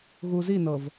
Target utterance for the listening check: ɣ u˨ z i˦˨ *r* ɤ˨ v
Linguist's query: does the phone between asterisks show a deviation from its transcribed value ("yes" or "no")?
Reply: yes